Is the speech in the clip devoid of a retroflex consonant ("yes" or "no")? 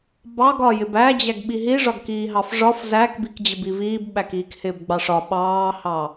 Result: no